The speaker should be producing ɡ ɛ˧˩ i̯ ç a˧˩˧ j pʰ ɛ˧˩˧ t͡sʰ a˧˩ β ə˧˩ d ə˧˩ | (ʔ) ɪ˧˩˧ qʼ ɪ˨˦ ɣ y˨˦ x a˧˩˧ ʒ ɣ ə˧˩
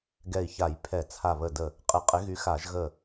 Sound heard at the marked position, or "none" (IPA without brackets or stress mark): qʼ